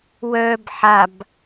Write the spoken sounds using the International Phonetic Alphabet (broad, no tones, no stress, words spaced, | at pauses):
wœːb ħab